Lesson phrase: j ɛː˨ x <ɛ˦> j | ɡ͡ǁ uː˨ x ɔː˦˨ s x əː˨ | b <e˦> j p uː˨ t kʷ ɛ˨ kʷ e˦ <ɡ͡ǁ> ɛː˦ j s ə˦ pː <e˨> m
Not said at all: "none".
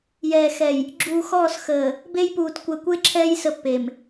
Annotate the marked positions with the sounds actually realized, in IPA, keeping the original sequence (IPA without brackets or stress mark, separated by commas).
ɛ˨, e˦, ǁʰ, e˨